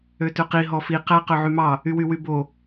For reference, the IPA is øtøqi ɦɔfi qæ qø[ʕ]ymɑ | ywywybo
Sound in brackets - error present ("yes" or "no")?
no